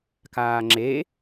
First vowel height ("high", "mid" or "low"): low